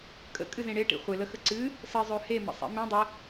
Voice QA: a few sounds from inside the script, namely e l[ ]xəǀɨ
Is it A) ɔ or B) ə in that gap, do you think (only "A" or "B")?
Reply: B